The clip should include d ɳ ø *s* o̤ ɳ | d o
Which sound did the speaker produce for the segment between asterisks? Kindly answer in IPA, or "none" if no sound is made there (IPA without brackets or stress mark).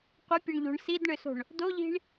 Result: s